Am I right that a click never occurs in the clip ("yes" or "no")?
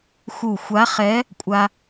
yes